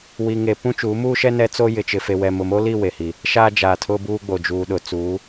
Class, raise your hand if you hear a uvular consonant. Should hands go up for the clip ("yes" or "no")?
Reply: no